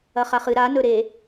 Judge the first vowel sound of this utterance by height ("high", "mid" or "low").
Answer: low